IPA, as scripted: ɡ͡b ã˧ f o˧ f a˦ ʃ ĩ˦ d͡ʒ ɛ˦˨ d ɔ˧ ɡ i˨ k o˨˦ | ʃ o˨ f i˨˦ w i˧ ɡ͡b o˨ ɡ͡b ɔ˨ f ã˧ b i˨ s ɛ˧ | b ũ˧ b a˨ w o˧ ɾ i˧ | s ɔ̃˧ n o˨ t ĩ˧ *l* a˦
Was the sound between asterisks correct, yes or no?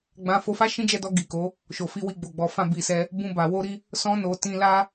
yes